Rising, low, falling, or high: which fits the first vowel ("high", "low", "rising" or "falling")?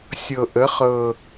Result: low